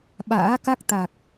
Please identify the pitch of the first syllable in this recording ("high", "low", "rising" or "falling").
rising